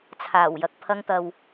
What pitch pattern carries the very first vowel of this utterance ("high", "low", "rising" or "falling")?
low